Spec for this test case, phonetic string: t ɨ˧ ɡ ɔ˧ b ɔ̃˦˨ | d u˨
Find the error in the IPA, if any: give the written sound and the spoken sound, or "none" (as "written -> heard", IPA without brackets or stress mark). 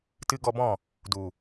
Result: none